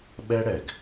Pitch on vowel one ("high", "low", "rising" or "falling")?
high